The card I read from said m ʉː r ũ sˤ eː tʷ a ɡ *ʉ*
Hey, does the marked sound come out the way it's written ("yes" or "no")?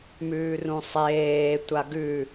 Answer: yes